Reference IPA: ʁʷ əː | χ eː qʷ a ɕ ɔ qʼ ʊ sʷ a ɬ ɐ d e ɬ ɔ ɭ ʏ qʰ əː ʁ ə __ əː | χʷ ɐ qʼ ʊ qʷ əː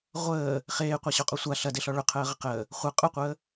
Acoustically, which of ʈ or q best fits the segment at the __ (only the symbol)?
q